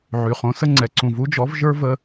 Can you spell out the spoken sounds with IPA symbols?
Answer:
ʕy˨χõ˨˦sə˦ ŋ͡ǀɛ˨ǀũ˨vu˦d͡ʒɔ˨˦v ʒə˞˦və˧

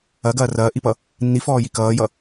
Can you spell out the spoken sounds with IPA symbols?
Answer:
ɐɡɐː rɐːʔipʌ | nːifɔːji kʌːjʌ

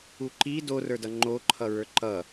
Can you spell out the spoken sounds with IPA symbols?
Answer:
uǃi dorə˞dʌ ŋ͡ǃoǃʰʌɹə˞ ǃʌ

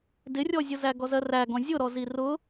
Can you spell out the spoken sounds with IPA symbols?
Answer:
dɪrʲɔzʲʊzæ ɡɔzɜræɡɔ̃ zʲʊɾɔ zirʊ

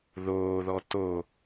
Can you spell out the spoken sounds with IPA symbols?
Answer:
ðoːðɔ to

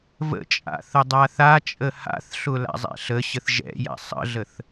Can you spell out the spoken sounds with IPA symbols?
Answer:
və̰t͡ʃʼa̰ θədˤaθat͡ʃʼə ha̰θɬʊ la̰zˤɛ̰ɬəɕəθ ʒɛ̰ja̰ sˤə̰ɮəθ

